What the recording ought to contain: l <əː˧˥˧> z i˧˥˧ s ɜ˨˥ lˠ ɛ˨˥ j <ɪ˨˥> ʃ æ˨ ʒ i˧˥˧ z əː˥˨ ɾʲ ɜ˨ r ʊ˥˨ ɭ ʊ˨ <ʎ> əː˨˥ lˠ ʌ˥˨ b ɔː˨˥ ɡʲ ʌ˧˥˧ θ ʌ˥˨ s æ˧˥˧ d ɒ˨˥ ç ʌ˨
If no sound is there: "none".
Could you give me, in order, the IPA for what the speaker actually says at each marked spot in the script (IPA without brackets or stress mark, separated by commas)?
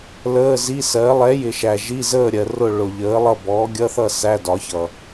əː˧˥˧, ɪ˨, ʎ